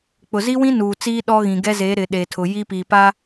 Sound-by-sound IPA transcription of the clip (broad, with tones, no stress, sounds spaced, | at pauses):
k͡p ʊ˨ z i˦ w ĩ˦ n uː˨ t͡s iː˦ ɗ ɔ˦ ɣ ĩ˨ ɡ ɛ˦ z eː˨˦ ɾ ɪ˨ ɗ eː˨ tʰ ʊ˨ j i˦ p iː˨ p a˦